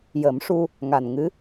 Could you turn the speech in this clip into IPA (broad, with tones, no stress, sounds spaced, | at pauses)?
j ə˨˩˦ m ʂ u˧ | ŋ a˨˩ n ŋ ɨ˧˥